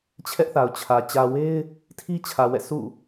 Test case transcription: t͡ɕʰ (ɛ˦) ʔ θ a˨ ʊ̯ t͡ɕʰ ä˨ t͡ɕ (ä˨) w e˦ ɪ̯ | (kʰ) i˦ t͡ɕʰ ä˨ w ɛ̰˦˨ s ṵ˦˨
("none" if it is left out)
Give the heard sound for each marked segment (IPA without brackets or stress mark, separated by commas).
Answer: ɛ˦, ä˨, tʰ